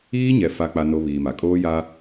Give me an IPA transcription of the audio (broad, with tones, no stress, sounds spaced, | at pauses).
iː˦ ɲ ɛ˨ f a˦ k͡p a˦ n o˦ β iː˨ m a˨ kʼ oː˦ j a˦